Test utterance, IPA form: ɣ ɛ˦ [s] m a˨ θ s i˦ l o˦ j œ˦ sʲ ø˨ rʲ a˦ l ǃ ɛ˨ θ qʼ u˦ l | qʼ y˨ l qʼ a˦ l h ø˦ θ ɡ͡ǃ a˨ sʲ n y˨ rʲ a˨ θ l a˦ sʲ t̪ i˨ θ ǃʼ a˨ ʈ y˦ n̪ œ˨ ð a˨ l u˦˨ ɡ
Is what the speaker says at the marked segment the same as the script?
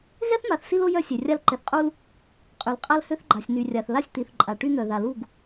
no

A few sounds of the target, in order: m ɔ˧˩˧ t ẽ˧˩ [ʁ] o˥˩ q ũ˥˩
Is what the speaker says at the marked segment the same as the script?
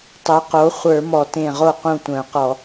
yes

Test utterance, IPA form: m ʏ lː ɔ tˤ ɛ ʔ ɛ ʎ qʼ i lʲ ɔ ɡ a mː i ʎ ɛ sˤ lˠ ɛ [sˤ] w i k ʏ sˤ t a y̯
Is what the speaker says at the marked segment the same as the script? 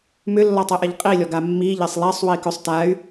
yes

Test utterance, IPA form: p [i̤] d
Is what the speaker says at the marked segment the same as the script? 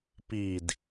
no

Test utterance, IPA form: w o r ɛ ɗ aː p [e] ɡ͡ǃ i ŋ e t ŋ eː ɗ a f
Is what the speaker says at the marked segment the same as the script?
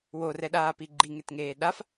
no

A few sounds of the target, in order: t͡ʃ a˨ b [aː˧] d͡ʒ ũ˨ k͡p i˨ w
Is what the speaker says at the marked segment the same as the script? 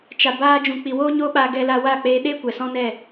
yes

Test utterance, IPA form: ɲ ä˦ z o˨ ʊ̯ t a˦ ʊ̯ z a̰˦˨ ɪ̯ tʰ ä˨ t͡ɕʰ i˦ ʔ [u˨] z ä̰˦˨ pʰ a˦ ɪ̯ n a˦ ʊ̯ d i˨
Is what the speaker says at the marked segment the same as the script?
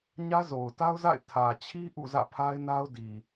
no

